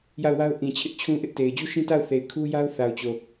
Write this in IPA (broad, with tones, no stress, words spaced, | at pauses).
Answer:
ja˦˨ʊ̯wa˦ʊ̯ʔĩ˨t͡ɕʰɪ˦ʔ t͡ɕʰũ˦ʔɪ˦ʔte˨ɪ̯ d͡ʑu˦ʃĩ˦ta˦˨ʊ̯θe˨ɪ̯ kʰu˦ja˦ʊ̯θa˨ʊ̯t͡ɕo˨